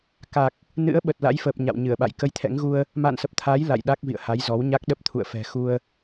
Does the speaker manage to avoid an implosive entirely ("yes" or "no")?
no